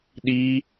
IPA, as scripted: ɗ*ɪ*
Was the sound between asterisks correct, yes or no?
no